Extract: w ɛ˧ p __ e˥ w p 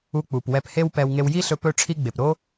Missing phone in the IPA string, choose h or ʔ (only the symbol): h